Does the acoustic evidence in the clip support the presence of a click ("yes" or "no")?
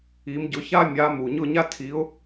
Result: no